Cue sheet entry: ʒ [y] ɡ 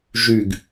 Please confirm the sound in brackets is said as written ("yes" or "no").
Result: yes